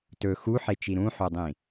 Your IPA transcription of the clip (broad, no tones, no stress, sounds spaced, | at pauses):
t ɵ x u ħ e t͡ʃ i ɾ ũ ħ o dˤ ĩ